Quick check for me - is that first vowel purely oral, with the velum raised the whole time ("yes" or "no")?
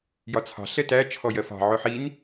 yes